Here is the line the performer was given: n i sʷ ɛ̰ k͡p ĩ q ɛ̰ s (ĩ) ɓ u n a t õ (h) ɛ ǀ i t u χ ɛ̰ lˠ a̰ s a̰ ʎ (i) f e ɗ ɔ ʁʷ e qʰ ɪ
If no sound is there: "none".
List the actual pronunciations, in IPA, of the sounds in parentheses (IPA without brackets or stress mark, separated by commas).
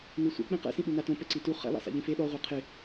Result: ĩ, p, ĩ